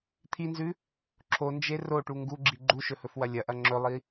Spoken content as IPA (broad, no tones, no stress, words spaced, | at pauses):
t̪ʰinzʉ | ǁʰond͡ʒe roʈu ŋɡuɡ͡ǁi ɡ͡ǃuʃɵhɵfwɐ lʲɐʔɐ ŋ͡ǁɵlˠi